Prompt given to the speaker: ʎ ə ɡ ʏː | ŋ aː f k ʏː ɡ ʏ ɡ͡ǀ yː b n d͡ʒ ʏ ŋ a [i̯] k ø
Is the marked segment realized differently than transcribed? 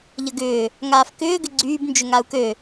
yes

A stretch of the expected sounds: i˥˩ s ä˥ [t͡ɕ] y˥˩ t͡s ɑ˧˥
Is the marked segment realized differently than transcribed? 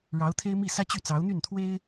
no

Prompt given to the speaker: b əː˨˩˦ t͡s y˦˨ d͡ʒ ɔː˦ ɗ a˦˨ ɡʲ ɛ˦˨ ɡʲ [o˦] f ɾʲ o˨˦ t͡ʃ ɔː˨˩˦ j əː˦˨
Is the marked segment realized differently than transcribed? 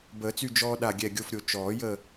no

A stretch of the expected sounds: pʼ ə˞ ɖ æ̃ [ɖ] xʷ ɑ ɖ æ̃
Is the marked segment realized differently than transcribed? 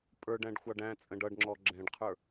no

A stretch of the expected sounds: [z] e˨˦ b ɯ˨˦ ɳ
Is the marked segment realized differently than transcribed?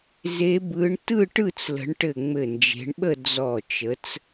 no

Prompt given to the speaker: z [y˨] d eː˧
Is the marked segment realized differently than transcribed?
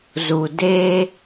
yes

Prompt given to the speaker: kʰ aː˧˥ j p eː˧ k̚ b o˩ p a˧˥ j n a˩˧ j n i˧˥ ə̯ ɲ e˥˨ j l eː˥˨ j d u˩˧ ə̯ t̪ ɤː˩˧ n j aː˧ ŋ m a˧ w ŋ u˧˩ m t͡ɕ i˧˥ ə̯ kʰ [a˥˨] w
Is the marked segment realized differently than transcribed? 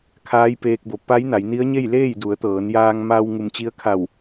yes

